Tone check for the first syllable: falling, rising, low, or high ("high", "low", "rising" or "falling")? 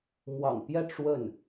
low